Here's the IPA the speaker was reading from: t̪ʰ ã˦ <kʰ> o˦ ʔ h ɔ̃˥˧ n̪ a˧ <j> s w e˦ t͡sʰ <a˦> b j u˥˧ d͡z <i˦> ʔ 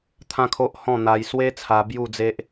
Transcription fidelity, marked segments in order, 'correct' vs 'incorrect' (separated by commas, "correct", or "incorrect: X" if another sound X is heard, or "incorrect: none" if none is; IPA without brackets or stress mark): correct, correct, incorrect: a˧, incorrect: e˦